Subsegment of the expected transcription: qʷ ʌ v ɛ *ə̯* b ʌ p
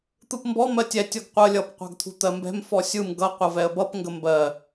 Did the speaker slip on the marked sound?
no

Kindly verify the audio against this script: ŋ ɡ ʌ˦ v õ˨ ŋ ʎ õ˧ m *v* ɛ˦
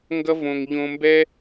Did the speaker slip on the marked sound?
yes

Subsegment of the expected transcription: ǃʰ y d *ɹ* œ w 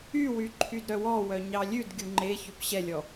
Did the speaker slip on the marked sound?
yes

